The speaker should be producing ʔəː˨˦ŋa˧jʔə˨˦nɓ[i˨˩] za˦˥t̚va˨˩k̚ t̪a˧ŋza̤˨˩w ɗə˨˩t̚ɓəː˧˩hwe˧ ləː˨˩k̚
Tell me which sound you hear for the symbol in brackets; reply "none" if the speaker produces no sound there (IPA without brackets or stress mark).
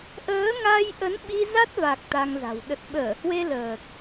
i˧